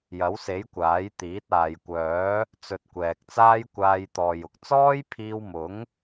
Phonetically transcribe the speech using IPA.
j ɐ˨˥ w s e˨˥ j kʷ aː˨˥ j t̪ iː˨˥ t̚ aː˨ j kʷ œː˨˥ | t͡s ɵ˧ t̚ kʷ ɛː˨ k̚ t͡s aː˥ j kʷ aː˧ j t̪ ɔː˨ j ʊ˨ k̚ t͡s ɔː˥ j pʰ iː˧ w m ʊ˨˥ ŋ

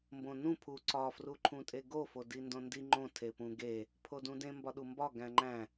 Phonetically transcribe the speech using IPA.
m b õ n ũ pʰ u ǀ ɒ f r u ǃʰ ũ tʼ e ɡ o f o d i n d õ n d i ŋ͡ǃ õ tʰ e p ũ ɡ e | pʰ o d ũ d ẽ m b ɒ ɗ u m b ɒ ɡ æ̃ ŋ͡ǃ æ̃

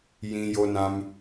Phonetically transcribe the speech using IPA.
j ĩ˧ j o˧ n ã˧ m

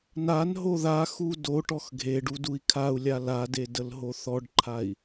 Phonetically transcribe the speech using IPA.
n a n ɦ o ð a x u d o ʈ ɔ x ɡʱ e ɖ u d u i̯ kʰ a u̯ lʲ a l a d e d ə l ɦ o θ ɔ ɖ ǃʰ a i̯

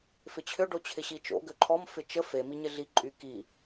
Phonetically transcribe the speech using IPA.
f ɪ t͡ɕʰ ʏ ɖ o t͡ɕʰ ɪ ɕ i t͡ʃ o̰ ɡ ø ǃʰ ɔ m f ɪ t͡ʃ ə f e m i ɲ ɪ ɮ i ǃʼ y k i

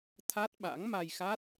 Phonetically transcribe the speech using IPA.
t̪ʰ a˦˥ t̚ ɓ a̰˧˥ ŋ m a˧ j x a˦˥ t̚

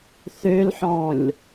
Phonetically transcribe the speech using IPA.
θ ø l ħ ɔ̃ lʲ

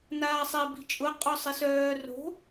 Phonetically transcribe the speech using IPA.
n aː sˤ e b i̤ t͡ʃʼ ʊ qʼ ɔ sˤ ɪ s œː r o̤

